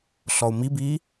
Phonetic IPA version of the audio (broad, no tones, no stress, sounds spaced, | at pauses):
ɬ ɔ u̯ m i b iː